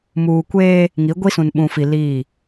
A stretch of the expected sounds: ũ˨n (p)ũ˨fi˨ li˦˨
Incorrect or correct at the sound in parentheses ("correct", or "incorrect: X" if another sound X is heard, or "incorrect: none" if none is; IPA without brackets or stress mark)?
incorrect: ɓ